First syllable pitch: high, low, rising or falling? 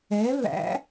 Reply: rising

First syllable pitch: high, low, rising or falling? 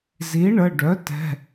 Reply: rising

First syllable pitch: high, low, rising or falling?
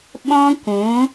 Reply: high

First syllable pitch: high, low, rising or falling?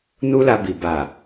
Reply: high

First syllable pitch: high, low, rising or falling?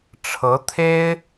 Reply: rising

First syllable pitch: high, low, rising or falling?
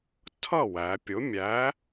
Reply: falling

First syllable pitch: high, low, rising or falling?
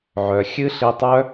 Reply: low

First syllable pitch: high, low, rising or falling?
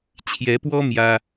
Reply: rising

